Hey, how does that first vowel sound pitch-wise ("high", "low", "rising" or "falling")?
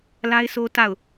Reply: high